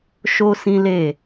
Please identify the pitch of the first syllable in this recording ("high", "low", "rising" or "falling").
high